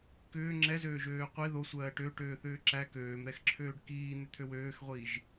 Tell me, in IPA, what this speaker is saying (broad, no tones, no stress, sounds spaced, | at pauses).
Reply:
k ʏː ŋ͡ǁ ɛ z øː ʒ øː qʷ i ð o sʷ ɜː ʈ ø ʈ øː θ ʏː ǁ æ k øː m ɾ ɛ x ǁʰ øː ɖ k iː n̪ ʏ t̪ʰ ø w øː x ʁʷ iː ʒ